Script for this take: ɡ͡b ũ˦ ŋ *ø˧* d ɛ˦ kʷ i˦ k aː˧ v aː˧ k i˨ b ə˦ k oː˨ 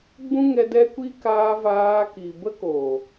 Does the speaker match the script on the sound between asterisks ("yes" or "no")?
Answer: no